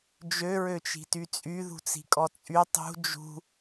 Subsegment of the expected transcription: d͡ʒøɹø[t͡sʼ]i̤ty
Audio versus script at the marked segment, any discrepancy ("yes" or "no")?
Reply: yes